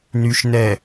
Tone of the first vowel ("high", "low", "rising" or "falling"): low